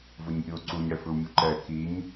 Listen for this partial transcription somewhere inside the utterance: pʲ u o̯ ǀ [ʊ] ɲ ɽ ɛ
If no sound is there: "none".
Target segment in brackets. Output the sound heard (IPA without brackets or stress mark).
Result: u